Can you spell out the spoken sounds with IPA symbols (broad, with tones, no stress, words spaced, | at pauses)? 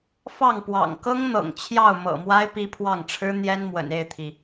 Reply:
fɑ˥˨ŋpwɑ̰˨˩ŋ kɤ˦ŋn̪ɤ̰˨˩ŋ t͡ɕʰjɑ˥˨ʊ̯mɤ̰˨˩mwa˦ɪ̯ pi˦pʰwɑ˥˨ŋ ʈ͡ʂʰɻ̩˦ n̪jɛ˦nmwə̰˨˩n e˥˨ɪ̯t̪ʰi˩